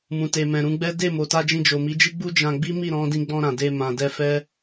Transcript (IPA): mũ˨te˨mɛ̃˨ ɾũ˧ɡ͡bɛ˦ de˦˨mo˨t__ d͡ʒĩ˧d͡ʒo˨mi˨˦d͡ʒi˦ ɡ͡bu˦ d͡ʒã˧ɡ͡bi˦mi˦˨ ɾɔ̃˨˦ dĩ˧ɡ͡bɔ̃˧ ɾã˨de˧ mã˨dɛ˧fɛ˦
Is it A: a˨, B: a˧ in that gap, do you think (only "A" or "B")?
B